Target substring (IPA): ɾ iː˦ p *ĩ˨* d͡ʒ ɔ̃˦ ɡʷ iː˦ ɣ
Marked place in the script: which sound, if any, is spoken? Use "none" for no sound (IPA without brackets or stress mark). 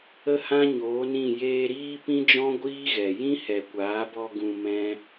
ĩ˦